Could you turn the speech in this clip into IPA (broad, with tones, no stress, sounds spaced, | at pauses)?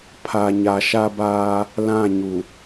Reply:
pʰ a˨ ɲ a˨ ʃ a˦ b aː˦ | l ã˦˨ ɲ u˨